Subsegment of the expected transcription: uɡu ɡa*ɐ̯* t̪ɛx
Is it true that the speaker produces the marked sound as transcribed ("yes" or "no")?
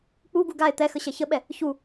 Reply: no